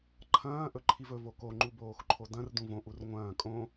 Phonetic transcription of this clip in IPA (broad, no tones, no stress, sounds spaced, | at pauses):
ǃʰ ɐ̃ː ʔ ɵ ǃʰ i v ɵ v o k o ŋ͡ǃ u b oː x ǃʰ o d ɐ̃ r d ũ v õ ʔ u r ŋʷ ɐ̃ː kʼ õ